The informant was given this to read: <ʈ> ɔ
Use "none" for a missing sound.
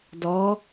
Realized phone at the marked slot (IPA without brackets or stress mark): d